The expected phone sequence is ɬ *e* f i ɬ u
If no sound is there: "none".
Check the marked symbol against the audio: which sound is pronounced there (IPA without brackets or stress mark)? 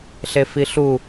e